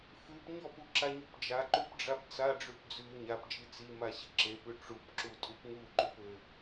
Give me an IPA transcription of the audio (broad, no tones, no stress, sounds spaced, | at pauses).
f ʉ p ɲ ɔ p u ǁ a ɲ ʉ p d͡ʒ a ǃ ʉ p ɖ͡ʐ a p t͡s a ɖ͡ʐ ʉ p d͡z ʉ ɲ a p d͡ʒ i t͡s i m a ɕ i ǁ e p ʉ ʈ͡ʂ u p ǁ u tʼ u p ŋ u ǃ ʉ p ɘ